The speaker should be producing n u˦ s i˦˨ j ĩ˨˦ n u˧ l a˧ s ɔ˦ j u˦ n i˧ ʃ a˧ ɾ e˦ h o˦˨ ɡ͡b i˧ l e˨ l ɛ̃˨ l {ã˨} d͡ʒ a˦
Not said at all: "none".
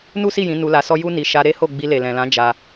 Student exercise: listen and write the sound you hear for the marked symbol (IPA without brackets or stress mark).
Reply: ã˨˦